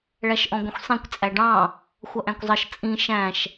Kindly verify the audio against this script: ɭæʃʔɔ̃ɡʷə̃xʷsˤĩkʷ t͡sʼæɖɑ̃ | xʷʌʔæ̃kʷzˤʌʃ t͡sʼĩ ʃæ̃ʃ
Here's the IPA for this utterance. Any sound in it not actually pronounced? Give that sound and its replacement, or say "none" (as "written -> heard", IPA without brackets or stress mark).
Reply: none